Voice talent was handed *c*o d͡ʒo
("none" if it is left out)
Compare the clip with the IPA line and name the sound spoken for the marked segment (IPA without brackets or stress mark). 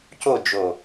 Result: c